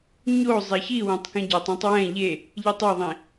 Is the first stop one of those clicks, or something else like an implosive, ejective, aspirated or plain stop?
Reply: plain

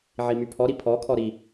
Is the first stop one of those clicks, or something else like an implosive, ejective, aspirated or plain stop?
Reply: aspirated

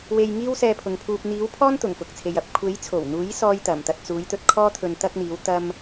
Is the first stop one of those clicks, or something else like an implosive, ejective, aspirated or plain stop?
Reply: aspirated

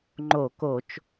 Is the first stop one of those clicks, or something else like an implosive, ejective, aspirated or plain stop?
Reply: click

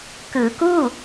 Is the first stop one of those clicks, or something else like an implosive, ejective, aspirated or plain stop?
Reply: plain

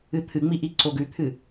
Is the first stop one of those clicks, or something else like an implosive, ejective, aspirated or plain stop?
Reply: aspirated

